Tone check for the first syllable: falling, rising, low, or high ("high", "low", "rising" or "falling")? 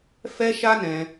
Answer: high